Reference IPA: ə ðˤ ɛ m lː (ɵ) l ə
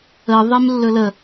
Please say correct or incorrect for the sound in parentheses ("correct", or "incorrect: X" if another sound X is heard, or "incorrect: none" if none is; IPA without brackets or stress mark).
correct